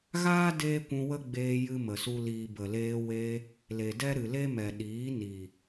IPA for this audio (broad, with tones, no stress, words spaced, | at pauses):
ɣaː˦ deː˦kʷũ˧wə˦ɡ͡beː˧ jɨ˦mə˨su˦liː˧ bə˨leː˧we˧ | le˨dɛ˦ ɾɨ˨le˦mɛ˨ ɗiː˨˦ni˨